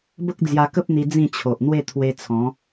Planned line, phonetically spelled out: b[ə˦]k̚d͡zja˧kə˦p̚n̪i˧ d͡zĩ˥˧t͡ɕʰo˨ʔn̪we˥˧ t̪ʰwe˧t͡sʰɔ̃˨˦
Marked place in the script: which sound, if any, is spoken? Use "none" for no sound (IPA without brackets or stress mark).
ə˦